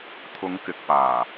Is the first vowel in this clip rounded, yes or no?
yes